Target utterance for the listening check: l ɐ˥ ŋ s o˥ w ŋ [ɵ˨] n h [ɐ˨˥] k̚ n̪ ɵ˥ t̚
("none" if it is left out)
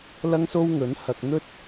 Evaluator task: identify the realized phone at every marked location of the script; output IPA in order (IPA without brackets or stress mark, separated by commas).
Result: ɵ˨˥, ɐ˧